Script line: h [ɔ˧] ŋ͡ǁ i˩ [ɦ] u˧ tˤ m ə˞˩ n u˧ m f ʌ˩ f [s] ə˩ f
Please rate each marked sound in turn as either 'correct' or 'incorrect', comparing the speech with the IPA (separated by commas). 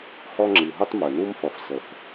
correct, correct, correct